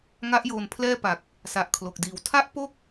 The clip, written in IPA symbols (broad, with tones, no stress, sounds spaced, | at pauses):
ŋ a˦˥ ʔ j oː˧ n pʰ l ɛː˥˩ p a˨˩ k̚ | s a˨˩ ʔ kʰ l o˨˩ k̚ d iː˨˩ w tʰ a˦˥ ʔ p o˥˩ k̚